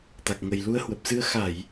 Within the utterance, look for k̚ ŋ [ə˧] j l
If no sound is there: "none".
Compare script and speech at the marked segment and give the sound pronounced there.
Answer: ə˨˩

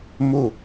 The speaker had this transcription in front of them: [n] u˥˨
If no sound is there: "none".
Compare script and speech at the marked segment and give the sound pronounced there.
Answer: m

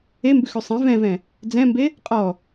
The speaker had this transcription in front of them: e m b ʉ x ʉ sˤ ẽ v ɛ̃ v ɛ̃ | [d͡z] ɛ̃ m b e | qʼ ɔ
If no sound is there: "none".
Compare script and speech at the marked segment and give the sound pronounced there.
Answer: d͡z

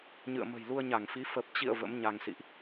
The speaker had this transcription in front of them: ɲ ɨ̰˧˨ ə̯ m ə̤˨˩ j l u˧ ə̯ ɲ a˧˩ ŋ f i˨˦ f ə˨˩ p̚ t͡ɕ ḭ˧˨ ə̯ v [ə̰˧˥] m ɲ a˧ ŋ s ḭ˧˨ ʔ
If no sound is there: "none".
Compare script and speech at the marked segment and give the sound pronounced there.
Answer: ə̰˧˥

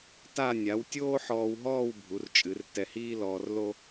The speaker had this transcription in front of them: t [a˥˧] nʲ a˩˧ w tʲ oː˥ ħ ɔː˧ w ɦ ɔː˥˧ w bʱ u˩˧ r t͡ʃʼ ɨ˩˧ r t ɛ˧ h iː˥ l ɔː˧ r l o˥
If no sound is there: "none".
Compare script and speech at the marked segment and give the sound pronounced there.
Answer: a˥˧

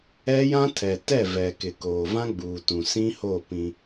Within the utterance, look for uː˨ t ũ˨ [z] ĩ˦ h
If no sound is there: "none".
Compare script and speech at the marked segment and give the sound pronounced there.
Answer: s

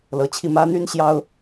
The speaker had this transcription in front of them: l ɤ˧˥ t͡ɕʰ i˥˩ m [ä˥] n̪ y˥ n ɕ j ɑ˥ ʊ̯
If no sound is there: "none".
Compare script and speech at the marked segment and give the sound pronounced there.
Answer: ä˥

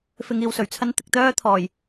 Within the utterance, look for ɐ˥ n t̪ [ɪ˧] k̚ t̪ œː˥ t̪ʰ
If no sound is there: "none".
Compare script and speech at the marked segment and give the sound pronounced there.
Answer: ɪ˧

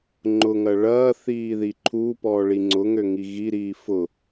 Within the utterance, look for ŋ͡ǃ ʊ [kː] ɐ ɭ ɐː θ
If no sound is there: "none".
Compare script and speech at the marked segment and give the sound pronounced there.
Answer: ŋ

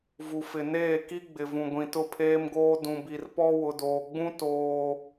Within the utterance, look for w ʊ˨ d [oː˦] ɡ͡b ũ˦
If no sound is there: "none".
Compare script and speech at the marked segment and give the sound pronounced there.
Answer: oː˨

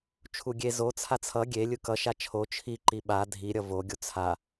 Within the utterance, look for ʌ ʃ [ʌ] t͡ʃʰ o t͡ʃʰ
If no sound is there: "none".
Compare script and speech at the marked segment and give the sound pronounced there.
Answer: a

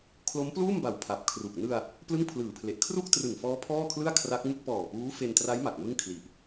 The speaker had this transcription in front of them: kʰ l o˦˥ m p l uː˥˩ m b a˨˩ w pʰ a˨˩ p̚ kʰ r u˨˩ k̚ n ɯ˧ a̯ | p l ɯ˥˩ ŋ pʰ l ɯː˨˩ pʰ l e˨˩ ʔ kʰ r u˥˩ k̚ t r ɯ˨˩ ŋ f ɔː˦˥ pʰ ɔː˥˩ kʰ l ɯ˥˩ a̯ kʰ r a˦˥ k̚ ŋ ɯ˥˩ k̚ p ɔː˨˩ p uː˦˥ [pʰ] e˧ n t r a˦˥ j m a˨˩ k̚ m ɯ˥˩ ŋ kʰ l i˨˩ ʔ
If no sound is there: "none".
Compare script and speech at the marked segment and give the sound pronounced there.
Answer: f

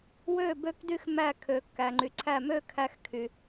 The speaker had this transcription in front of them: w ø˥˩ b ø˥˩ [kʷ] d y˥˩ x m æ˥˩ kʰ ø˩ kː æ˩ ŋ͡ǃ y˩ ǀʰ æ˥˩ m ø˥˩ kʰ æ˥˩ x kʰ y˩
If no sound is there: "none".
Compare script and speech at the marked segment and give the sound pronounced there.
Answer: k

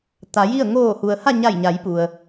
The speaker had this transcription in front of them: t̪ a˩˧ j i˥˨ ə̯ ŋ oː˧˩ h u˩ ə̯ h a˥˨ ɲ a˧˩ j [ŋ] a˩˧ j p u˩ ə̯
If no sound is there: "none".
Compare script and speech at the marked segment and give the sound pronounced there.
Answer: ɲ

